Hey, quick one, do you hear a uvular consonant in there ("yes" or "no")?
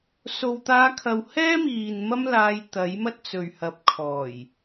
no